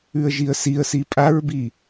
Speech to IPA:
ʉə̯ʒiə̯siə̯si pʼaɹbi

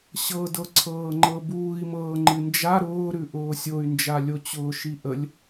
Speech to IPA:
ɕɤdɤǀʰɤːŋ͡ǃɤ buːi̯mɤː ŋ͡ǃɨnd͡ʒa ɾʊːɾʉ ʔʊːsʲoy̯nd͡ʒalʲo t͡ɕʊːʃiʔəlʲ

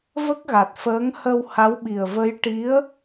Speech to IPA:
və˦˥k̚ɣa˨˩t̚fəː˧˥ŋ hə˧wha˧˥wɓi˨˩ə̯və˧˥j ʈi˧˥ə̯

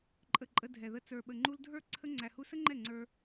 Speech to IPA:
ǃʼə˨ ǃʼə˧ dʱɛ˨ðə˧ t͡sə˞˨ɓə˨ŋ͡ǃu˧l dʱə˞˦˨ ǀʰə˦ ŋ͡ǀæ˧hu˦ sə˦ŋ͡ǃɛ˦˨ ŋ͡ǀə˞˧

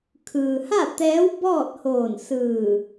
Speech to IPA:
kʰɯː˩ha˥˨t̪ɛː˧˥w bɔː˥˨t̚hoː˧˩nsɯː˧˩

